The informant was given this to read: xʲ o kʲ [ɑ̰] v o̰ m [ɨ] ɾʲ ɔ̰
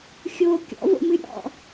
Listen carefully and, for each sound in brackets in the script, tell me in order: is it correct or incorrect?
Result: incorrect, correct

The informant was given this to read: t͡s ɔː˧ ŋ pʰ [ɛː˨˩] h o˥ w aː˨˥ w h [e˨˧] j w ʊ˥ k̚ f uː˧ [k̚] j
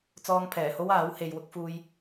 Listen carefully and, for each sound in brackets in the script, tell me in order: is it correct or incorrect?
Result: correct, incorrect, incorrect

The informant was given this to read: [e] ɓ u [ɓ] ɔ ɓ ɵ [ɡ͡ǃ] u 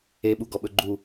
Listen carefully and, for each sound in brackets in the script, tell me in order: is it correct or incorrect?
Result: correct, incorrect, correct

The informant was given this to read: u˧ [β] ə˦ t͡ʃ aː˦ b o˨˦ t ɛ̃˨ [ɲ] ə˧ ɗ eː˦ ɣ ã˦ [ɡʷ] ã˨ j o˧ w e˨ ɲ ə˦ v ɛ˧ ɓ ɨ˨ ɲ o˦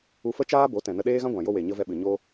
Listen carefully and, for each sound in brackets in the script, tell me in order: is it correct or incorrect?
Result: incorrect, incorrect, correct

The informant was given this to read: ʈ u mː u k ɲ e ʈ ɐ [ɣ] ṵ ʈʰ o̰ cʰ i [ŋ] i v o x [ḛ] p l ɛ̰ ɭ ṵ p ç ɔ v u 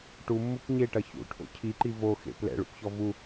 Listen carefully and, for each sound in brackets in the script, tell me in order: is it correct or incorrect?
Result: incorrect, incorrect, correct

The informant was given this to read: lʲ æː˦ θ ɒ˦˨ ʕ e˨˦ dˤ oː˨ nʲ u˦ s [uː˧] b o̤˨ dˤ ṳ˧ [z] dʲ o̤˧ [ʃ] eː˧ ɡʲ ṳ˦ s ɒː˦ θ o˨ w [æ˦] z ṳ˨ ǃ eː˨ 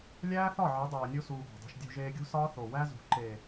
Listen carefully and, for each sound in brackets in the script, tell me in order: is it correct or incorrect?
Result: correct, incorrect, incorrect, correct

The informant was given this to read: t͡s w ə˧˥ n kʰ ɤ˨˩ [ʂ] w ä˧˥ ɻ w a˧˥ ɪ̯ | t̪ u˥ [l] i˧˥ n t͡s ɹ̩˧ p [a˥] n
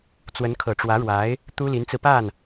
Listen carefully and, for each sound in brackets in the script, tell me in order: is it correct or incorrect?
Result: incorrect, correct, incorrect

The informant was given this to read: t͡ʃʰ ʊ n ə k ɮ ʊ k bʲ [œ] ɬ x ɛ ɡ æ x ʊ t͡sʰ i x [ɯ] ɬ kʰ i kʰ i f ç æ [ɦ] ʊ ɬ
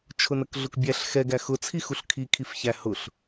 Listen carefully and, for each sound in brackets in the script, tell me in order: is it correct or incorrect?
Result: incorrect, incorrect, incorrect

